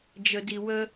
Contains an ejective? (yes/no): no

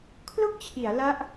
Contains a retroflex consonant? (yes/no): no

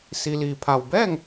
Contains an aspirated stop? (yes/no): yes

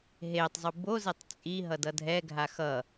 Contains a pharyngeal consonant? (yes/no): no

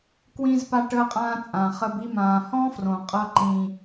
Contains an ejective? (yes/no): yes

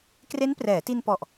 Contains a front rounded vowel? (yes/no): no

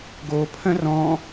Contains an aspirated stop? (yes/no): yes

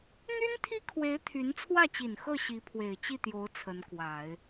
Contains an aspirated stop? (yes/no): yes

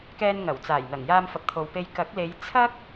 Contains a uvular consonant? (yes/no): no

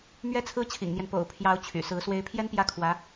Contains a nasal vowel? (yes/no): no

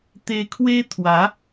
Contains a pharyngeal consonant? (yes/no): no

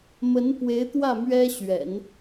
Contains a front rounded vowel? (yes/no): no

